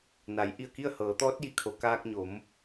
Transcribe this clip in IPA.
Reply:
n a˩˧ j ʔ i˧˩ ə̯ k i˥˨ ə̯ h ɤː˩˧ t̪ ɔː˧˥ t̚ j i˩ kʰ o˩˧ k aː˧ k̚ ɲ o˩˧ m

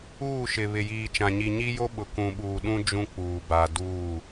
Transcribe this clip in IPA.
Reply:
uː˦˨ ʃ ɪ˨ β ɪ˨ j iː˨ t͡ʃ ã˨ ɲ i˨ ɲ i˦ j o˦ ɓ ʊ˨ k ũ˨ ɓ uː˨ ɗ ũ˦ d͡ʒ ũ˦ k͡p uː˨ b a˨ d uː˦˨

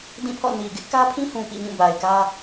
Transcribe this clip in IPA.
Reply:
d ĩ˦˨ pʰ ɔ̰˦˨ n i˨ ɡ ɪ˦ ʔ k ä˦ pʰ ĩ˦ h ũ˨ p ḭ˦˨ ɲ ũ˦˨ b a˨ ɪ̯ k ä˦

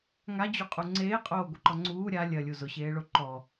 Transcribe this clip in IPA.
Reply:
ŋ a d͡ʑ u qʼ u ŋ͡ǀ eː qʼ oː ɡʷ e ǃ ɔ ŋ͡ǀ uː ɾʲ a lʲ ɐ lʲ u z ʊ ɕ eː ɭ o ǃ ɔ

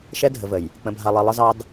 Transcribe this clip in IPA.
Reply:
ʃ ɛ˦ dʱ ə˨ v ə˨ j | k͡p ə̃˨ bʱ a˨ lˠ i˨ lˠ ə˦ z ɑ˦ d

